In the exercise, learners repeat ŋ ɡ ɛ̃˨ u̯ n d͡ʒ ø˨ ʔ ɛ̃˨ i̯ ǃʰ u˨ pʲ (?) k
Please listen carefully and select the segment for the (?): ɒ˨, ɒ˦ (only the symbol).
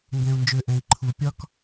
ɒ˦